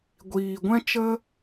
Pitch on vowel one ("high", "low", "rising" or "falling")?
low